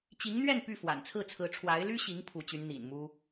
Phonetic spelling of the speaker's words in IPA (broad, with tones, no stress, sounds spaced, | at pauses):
t͡ɕ i˧˥ ŋ n̪ ɥ ɛ˥˧ n p y˥˩ f w a̰˨˩ n t͡sʰ ɹ̩˥˩ t͡sʰ ɹ̩˧˥ ʈ͡ʂʰ w a˧˥ ɪ̯ l y˥ ɕ i˧˥ ŋ pʰ u˧˥ t͡ɕ y˧˥ n n̪ ḭ˨˩ n m u˥